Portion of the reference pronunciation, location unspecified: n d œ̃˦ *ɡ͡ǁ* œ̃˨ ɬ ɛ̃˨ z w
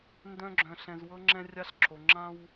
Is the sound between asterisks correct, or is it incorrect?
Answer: correct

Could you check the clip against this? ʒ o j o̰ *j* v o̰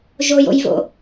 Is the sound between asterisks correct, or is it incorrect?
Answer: correct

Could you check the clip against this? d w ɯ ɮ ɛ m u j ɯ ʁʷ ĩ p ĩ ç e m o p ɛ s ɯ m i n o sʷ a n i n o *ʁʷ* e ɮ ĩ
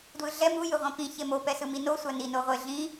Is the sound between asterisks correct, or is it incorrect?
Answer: correct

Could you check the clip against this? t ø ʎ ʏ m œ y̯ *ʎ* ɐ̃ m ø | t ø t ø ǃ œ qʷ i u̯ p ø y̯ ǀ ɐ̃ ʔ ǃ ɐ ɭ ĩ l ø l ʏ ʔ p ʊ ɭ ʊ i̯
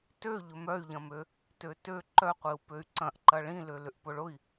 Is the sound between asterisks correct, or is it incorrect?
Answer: correct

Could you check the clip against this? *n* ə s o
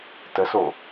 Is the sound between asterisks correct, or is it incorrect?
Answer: incorrect: t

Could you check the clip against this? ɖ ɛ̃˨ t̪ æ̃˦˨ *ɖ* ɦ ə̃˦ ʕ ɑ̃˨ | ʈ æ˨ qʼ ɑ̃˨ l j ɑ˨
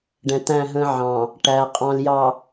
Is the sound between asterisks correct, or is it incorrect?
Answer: incorrect: none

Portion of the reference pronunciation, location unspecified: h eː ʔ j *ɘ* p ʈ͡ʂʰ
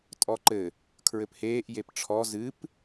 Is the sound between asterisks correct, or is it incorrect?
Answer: incorrect: e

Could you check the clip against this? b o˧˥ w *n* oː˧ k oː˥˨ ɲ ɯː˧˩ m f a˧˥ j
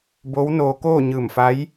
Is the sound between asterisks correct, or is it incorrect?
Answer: correct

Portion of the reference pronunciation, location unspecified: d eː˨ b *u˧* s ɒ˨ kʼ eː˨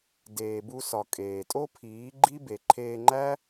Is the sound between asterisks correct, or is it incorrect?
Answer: correct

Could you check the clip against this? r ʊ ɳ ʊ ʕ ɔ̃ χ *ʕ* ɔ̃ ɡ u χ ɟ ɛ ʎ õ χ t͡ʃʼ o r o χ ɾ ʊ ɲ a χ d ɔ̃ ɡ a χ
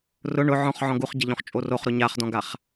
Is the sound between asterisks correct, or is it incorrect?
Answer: correct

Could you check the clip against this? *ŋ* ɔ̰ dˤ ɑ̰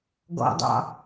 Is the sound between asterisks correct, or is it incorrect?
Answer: incorrect: ɡ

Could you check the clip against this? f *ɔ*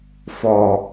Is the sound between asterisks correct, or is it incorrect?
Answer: correct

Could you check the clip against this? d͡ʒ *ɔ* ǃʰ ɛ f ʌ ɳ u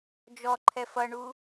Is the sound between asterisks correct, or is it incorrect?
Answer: correct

